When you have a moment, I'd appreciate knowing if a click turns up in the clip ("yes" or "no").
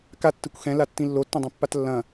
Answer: no